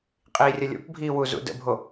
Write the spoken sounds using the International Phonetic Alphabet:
qʼ iː rʲ ɐ lʲ o̰ p bʱ iː w u z ṵ d ə̰ bʱ o

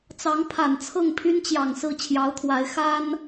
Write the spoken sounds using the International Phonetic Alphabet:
t͡s ɑ˧˥ ŋ pʰ a˨˩ n t͡sʰ ɤ˥˩ ŋ pʰ y˥ n t͡ɕ j ɑ˨˩ ŋ s ɹ̩˥˩ t͡ɕʰ j ɑ˧˥ ʊ̯ t̪ʰ w a˧˥ ɪ̯ x a˥ n

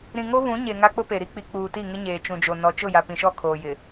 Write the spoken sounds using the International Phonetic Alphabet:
ɾ ĩ˨ ŋ o˦ β ũ˨˦ ɲ e˨ ŋ a˦ k͡p ʊ˦ p e˨ ɾ i˦ k͡p i˨ k͡p uː˨ t i˦˨ ŋ ɪ˦ ɲ eː˨ t͡ʃ ũ˨ d͡ʒ o˨ n ɔ˨ t͡ʃ ʊ˦˨ j a˨ p ĩ˨ ʃ ɔ˦˨ kʰ oː˨ j ɪ˨

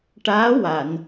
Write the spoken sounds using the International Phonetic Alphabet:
ʈ aː˧˥ w a˨˩˨ n

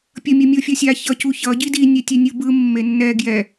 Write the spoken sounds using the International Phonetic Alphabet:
pʲ ʌ mʲ ʌ mʲ o fʲ ʌ sʲ a ç ʌ c u ç ʌ ɟ i d i nʲ ɛ tʲ ɛ nʲ ɯ b ɯ mː e nː ɛ ɡ j ɛ

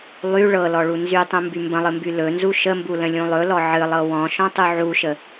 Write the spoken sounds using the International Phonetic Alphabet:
lˠ y ɭ ɤ l ɔ ɭ u n z y tˤ ũ m b y m b ə̃ lˠ ɨ m b y l ɵ n z u ʃ ə m b u l ə̃ lʲ ũ lˠ ɵ l ɔ ʕ ɨ lˠ ɤ w ɔ̃ ʃ ɔ̃ tˤ u ʕ u ʃ ə

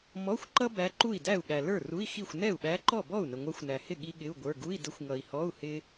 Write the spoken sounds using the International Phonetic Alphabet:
m ɔ˧˥˧ xʷ ǃ ʌ˥ b æ˧˥ ǃ u˥˩ i̯ d æ˥˩ u̯ ɠ æ˨ l ə˞˥˩ r u˧˥˧ i̯ x i˥˩ xʷ n ɛ˥˩ u̯ ɓ æ˧˥ ǃ ɔ˥˩ b ɔ˥˩ u̯ n ə˨ ŋʷ ɑ˧˥ xʷ n æ˨ h ɪ˥˩ ɠ i˥ ɠ ɪ˧˥˧ u̯ ɡʷ ə˞˧˥˧ ɡ u˧˥˧ i̯ d ə˧˥ xʷ ŋ ʌ˨ i̯ h ɔ˧˥˧ u̯ h ɪ˥

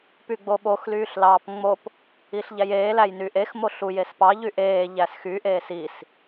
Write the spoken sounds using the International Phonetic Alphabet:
p y ɡ͡b o ɓ o x l yː ɬ l ɑː p ŋ͡m o p | i ɬ ʎ æ j eː l æ j n y ʔ e x m o ɬ u j e s p ɑ ʎ y ʔ eː ʎ æ s x y ʔ eː s i s

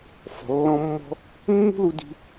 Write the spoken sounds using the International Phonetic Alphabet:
f ɔ̤˩ lː ɔ̃˧ mː ɔ̤˧ | mː ṳ˥ l u˧ d i̤˧

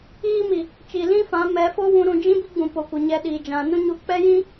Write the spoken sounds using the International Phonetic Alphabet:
iː˦ m i˨ | t͡ʃ i˨ l ĩ˦ f ã˨˦ m ɛ˨˦ f o˦ w ũ˧ ɾ ũ˧ d͡ʒ ĩ˦ b i˦ ɡ͡b ũ˨ p o˨ kʷ ə˨ ɲ ɛ˧ ɗ iː˨ d͡ʒ ã˨ n ũ˦ ɲ u˧ k͡p ɛ˦ j ĩ˦

